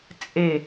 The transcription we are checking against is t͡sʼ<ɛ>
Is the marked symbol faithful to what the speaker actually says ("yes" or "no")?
no